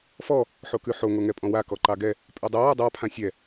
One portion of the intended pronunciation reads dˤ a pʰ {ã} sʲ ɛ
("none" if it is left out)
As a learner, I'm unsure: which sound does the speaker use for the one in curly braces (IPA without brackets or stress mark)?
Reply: ã